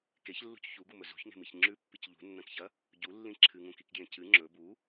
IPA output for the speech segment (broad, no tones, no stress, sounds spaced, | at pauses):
k e ç lː ṳ c ç u ɡ u m ɵ z ṳ ç ŋ e̤ m i ç ŋ͡ǁ ʉ pː i c ʎ ṳ nː ɐ̃ k ç ɐ | ɟ u lː ĩ ǁʰ ɨ ŋ ũ k i k ɡ j ẽ c ɨ ŋ͡ǁ ɵ b u